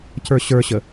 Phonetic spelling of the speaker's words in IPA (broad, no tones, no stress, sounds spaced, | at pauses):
c ə˞ ɕ ə˞ ɕ ə